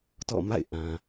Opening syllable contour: falling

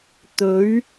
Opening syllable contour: rising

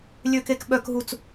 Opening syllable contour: low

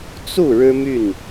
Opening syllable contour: falling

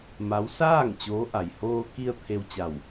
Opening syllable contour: rising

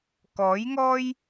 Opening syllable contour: rising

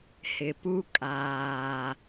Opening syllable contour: low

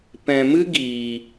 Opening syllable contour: low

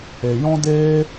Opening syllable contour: low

